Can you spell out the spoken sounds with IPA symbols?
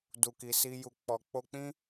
d u˨ k i˨ s i˧ j u˨ k͡p ɔ˨ k͡p o˧ k͡p ĩ˦

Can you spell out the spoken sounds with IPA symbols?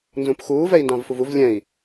n z ũ p x uː v ɛ i̯ n d ɑ̃ v f u v u v lʲ ɛ̃ i̯

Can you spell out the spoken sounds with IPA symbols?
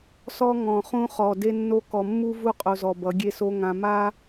s ɔ˦ ŋ ɔ̃˨ χ ũ˦ χ ɔ˨ d e˦ nː o˦ k ɔ˨ mː u˦ v u˦ qʼ o˨ z ɔ˨ b ʌ˨˦ ɡʲ e˦ s o˦ ŋ ã˨ m a˦

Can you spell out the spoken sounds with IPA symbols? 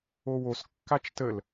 o w o s kː a t͡ʃ t ə l

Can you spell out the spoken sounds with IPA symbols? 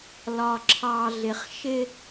l ɒ˨ ǁʰ ɑ˨ ɮ ɪ˨ χ ʃ ɪ˦

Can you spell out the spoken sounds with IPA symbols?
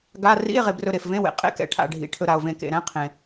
ɡ a˧˥˧ r ḭ˧˥˧ e̯ ʁ e˨ b r ɵ˨ ɾ e˨ f v ẽ˧˥˧ w ḛ˨ qʼ ḛ˧˥˧ k ɛ̰˨ ʈʰ a̰˨ ɖʱ ḭ˨ ʈʰ ɵ˨ ɾ a˨ o̯ v ẽ˨ k ḛ˨ ɾ ɛ̃˧˥˧ qʰ ẽ˨

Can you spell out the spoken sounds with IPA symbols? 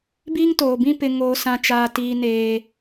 b iː˦ ŋ t oː˨ b ĩ˦ p ɪ˦ ŋ oː˦ s ã˦ t͡ʃ aː˦ t iː˦ n eː˦

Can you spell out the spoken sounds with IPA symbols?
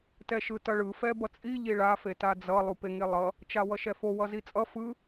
t ɛ ʃ ɯ t ʌ ɭ ɯ f ɛ b ʌ t͡sʼ i ʎ i ɭ a f e t a d͡z ʌ lˠ u p e ŋ e lˠ ʌ | t͡ʃ a w ʌ ʃ ɛ f o w ʌ z i t͡sʼ ʌ f ɯ

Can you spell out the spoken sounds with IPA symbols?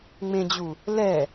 ŋ͡m ẽ d͡ʑ u | l ɛ

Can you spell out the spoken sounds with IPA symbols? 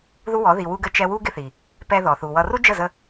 ð u˦ w ɔ˨˦ ð i˨ w u˧ ɡ ə˧ t͡ʃ ɛ˧ w u˦ ɡ ɪ˦ θ i˨ | p ɛ˧ ð ɔ˨ θ u˨ w ʌ˧ r u˦ d͡ʒ ə˦˨ z ə˧

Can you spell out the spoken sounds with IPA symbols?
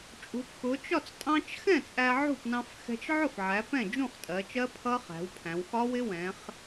t͡ʃʼ ṳ˩˧ p x ʊ˩˧ t͡ʃ ɒ˥˩ t͡s tʼ ɑ̃˧ t͡ʃ x ɛ̃˥˩ t͡sʼ æ˧ ʕ ṳ˥˩ p n ɑ̃˧ f x ɛ̤˧ t͡ʃ ʕ ʊ˥˩ f ʕ æ˩˧ p ɛ̃˥˩ d͡ʒ ũ˥˩ χ tʼ ɜ˩˧ t͡ʃ ɜ˦˥ pʰ ʌ˦˥ χ æ̤˩˧ w pʰ æ̃˩˧ w x ɒ˦˥ w ɪ˦˥ w ɛ̃˩˧ χ

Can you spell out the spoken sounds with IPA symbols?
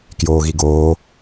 k j oː ɣ i ɡ oː

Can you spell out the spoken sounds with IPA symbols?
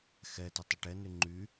x ɛ t ə tˤ ə ʈ ɛ n y ŋ͡ǃ y

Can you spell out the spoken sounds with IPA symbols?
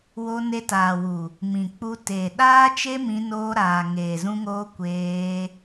w o˧ n e˧ t aː˨ w u˨ | m ĩ˨ k͡p u˧ t eː˨ ɗ aː˦ t͡ʃ e˦ m ĩ˧ n oː˧ ɾ aː˨ ŋ eː˨ z ũ˧ ŋ oː˧ kʷ eː˧

